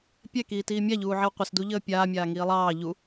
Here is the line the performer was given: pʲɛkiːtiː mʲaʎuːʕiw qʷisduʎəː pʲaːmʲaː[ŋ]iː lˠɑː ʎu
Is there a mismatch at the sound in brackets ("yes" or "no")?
no